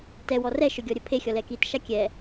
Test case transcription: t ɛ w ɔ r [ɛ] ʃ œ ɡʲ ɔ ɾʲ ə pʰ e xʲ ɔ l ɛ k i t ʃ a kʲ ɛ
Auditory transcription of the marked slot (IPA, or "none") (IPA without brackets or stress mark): ɛ